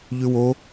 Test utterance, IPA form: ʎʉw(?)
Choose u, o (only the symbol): o